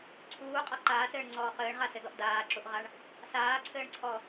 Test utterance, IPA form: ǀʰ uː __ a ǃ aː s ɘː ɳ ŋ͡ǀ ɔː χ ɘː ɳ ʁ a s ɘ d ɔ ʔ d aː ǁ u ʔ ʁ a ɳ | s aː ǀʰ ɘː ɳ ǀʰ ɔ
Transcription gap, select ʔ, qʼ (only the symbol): qʼ